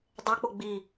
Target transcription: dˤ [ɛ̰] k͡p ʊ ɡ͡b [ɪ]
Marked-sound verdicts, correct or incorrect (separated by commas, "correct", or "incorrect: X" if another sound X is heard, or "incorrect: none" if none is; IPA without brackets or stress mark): incorrect: ɛ, incorrect: i